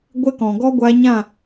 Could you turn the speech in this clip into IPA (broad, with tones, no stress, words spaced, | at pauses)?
ɡʷɛ˧kɔ̃˨ɡɔ˧ ɡʷa˧ɲã˦˨